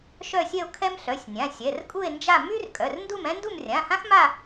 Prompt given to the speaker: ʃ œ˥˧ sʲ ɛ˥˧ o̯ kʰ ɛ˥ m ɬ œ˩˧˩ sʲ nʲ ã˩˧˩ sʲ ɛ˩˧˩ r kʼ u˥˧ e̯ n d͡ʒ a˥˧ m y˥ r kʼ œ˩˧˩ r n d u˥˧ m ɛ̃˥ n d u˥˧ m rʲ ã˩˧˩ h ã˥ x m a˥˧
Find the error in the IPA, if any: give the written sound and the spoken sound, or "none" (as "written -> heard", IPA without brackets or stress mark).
none